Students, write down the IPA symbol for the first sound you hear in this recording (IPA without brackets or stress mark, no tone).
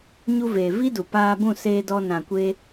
ɲ